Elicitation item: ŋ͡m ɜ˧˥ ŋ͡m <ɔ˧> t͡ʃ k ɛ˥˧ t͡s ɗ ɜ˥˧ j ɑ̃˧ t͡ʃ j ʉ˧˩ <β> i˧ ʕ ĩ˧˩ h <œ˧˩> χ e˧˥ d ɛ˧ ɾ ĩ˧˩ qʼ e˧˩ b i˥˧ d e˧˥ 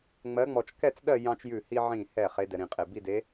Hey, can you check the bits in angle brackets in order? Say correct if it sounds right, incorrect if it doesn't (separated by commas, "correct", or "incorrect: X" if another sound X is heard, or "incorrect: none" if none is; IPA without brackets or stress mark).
correct, incorrect: h, incorrect: ɛ˧˩